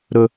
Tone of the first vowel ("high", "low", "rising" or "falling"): low